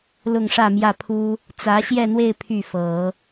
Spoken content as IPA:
l ʊ˥˧ ŋ ʂ ä˥˧ m j ä˥˩ pʰ u˥ | t͡s ä˧˥ ɕ j ɛ˥˧ n̪ w e˥˧ ɪ̯ pʰ y˥˩ f ɤ˨˩˦

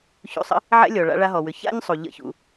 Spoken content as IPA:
ç ṵ˧ sˤ ə̰˥ | ʕ ɛ̰˥ lʲ ɔ˩ ɭ a̰˧ ɭ a˧ ɦ ɔ˩ w ʏ˩ ç a̰˥ ɲ sˤ u˩ ʎ ə̰˥ ç ṵ˧

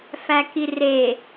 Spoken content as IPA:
f æ k i r e

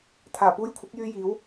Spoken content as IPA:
t̪ʰ aː˨˩ p uː˧ j kʷʰ ɐ˨˥ k̚ j yː˧ j iː˨˥ w

